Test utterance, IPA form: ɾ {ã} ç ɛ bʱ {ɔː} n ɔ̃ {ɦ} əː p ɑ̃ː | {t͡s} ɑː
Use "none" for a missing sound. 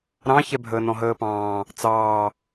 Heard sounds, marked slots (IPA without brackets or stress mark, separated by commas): ɑ̃, əː, ɦ, t͡s